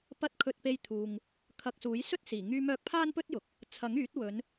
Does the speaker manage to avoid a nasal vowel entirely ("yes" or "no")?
yes